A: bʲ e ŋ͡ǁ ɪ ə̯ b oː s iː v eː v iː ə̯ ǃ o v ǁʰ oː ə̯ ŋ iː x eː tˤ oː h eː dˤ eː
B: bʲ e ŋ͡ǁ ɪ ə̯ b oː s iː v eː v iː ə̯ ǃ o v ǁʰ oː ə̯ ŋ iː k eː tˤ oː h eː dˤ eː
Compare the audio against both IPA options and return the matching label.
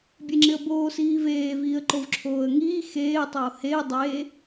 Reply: A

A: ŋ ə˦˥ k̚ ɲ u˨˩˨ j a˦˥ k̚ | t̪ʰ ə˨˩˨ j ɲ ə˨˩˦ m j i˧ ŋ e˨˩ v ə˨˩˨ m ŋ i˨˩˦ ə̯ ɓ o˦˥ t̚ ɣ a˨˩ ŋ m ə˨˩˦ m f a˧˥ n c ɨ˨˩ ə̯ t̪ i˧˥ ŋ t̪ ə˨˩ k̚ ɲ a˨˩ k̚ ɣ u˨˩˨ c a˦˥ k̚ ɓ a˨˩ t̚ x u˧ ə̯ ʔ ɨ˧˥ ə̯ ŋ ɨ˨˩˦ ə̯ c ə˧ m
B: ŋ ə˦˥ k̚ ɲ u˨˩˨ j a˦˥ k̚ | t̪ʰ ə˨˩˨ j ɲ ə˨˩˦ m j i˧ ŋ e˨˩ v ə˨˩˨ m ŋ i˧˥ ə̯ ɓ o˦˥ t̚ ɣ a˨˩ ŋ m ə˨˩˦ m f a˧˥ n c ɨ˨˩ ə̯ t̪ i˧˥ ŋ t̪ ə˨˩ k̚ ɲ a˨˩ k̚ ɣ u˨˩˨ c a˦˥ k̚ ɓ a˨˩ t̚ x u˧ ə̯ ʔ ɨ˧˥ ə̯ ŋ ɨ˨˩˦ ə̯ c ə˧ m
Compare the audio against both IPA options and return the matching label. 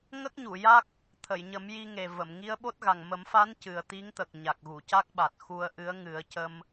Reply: B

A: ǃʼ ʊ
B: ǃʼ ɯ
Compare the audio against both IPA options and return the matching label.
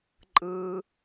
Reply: B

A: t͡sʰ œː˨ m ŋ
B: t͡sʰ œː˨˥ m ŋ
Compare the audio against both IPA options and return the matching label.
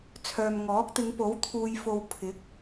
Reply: A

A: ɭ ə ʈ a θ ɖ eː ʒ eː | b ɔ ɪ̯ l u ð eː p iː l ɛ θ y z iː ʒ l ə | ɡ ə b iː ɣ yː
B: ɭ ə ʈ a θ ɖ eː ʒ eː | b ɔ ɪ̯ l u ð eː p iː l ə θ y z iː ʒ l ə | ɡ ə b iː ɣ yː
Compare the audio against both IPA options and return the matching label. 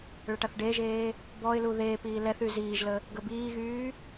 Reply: A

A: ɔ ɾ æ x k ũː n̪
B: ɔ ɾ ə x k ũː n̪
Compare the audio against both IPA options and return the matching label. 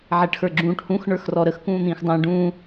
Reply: B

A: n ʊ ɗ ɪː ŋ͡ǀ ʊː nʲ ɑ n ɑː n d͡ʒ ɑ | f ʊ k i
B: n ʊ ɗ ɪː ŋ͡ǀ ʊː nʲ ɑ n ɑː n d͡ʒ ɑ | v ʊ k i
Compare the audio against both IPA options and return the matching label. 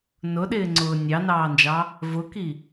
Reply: B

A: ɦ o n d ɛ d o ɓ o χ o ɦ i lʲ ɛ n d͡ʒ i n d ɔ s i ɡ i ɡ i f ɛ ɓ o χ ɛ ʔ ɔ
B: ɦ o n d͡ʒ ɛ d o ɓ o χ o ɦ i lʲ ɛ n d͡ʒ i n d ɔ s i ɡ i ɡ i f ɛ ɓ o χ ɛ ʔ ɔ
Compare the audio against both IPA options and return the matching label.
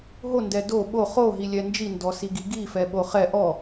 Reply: A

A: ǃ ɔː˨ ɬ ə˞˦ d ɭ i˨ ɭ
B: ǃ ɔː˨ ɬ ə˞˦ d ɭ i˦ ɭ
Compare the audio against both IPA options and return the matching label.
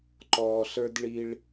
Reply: B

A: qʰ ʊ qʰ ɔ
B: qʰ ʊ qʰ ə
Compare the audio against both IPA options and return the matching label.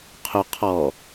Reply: A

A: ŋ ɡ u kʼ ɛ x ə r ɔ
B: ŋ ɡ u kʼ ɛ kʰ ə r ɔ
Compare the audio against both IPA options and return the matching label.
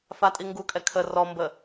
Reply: B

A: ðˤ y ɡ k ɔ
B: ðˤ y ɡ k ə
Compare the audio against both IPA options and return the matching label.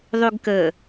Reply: B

